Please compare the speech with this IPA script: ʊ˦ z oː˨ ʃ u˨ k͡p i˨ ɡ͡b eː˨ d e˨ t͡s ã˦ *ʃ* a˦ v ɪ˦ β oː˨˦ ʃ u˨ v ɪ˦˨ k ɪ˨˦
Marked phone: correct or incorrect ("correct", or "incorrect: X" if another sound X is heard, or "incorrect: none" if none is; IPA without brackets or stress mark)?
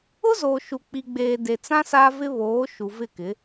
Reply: incorrect: s